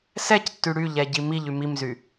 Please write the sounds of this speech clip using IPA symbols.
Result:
s ɛ c tː y ɽ y ʎ ɛ ɟ i m i ʎ y m i m z y

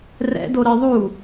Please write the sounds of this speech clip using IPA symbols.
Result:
r ɛ̰ d o ɾ i ðˤ u

